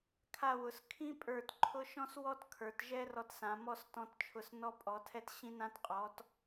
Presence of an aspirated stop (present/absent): present